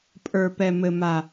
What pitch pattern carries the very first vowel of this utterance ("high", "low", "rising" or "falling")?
low